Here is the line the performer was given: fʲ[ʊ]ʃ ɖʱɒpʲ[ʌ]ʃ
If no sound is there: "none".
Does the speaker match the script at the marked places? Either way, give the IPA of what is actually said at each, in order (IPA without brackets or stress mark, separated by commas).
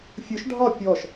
ʊ, ɔ